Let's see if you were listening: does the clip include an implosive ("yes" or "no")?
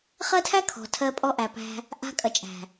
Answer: no